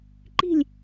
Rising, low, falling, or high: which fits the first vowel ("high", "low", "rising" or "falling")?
falling